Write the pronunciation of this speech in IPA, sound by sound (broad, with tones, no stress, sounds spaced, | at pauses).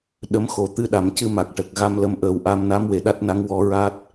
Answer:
ɗ ə˧˥ m x o˨˩˦ t̪ ɨ˧˥ ɗ a˨˩˦ m c ɨ˧ m a˨˩ k̚ ʈ ə˨˩ k̚ ɣ a˧ m l ə˧ m ʔ əː˨˩ w ʔ a˧ m n a˧˥ m w e˨˩˨ ɗ a˦˥ t̚ n a˧˥ ŋ w ɔ˧˥ ɹ a˦˥ t̚